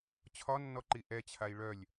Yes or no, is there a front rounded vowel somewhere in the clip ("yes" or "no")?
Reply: yes